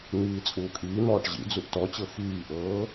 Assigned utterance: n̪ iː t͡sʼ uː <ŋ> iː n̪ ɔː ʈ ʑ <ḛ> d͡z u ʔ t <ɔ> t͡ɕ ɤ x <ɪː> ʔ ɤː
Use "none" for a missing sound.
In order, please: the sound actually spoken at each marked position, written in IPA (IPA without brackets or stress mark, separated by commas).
kʼ, ḭ, ɔ, iː